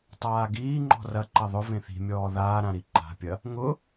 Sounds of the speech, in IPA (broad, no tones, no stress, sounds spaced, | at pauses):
tˤ aː ɡ iː ŋ͡ǃ ɔ̤ r ɐ ǃ ɐ ðˤ ʊ v ẽ θ i̤ mʲ ɔː ð aː ɾ ã ɾ i ǃ a̤ pʲ ɐ | ŋ ʊ